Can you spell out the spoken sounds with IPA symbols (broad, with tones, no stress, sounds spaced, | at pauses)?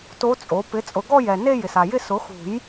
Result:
t o˧˥ t͡sʼ o˩˥ p ɪ˩˥ t͡sʼ ʊ˨˩˦ ɡ ɔ˥˧ j ɛ˨ n e˥˧ j ɪ˨ s a˨ j ɪ˥˧ s ʊ˩˥ x ṳ˨˩˦ j